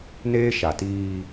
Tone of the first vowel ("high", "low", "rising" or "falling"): high